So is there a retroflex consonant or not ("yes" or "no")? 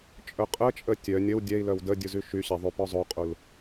no